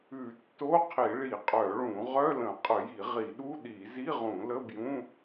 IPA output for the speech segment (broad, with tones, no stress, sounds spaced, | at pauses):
ʉ˧˩˧ tː o˧˥˧ qʰ i˧˩˧ ɭ i˧˩˧ qʼ œ˧˩˧ ɭ ũ˧˩˧ ʁ œ˧˥˧ l ə̃˧˩˧ qʼ ə˧˩˧ j i˧˩˧ ʁ i˧˩˧ ɗ u˧˥˧ ɗ i˧˩˧ z i˧˥˧ ʁ ũ˧˩˧ l ə˧˥˧ b j ũ˧˥˧